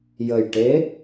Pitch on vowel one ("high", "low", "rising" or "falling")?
low